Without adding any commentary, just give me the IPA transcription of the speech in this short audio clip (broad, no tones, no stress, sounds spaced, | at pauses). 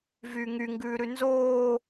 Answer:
v yː ŋ y ŋ ɡ ʉː ɾ ʉ n z oː